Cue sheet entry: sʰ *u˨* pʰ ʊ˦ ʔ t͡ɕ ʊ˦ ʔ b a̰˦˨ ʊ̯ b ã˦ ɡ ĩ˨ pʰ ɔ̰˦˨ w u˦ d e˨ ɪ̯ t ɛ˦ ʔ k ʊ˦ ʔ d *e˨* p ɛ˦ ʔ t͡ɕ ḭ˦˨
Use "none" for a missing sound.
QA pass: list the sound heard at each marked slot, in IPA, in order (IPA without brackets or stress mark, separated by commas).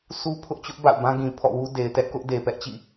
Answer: u˦, e˨